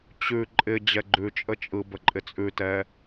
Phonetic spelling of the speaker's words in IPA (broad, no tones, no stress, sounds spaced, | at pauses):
t͡ɕ ʉ ǃʼ ɪ d͡ʑ ɛ ɡ͡ǃ ʉ t͡ʃʼ ə t͡ʃʼ ɯ b ə ǃʼ ɪ t͡sʼ ʉ t ɛ